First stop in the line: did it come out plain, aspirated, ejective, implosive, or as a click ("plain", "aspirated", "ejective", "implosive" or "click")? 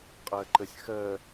ejective